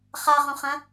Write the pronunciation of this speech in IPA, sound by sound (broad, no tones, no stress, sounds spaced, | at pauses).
χ a ʁ õ χ ɐ̃